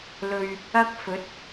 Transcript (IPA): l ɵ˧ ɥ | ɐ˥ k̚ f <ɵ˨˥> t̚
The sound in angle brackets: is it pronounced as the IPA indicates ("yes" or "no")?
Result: yes